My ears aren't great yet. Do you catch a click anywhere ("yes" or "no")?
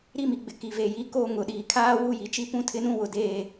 no